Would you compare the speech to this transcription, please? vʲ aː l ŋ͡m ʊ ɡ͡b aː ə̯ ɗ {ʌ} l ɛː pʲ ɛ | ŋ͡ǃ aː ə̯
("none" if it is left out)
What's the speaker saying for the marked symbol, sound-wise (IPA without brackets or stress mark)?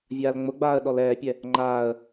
ɔ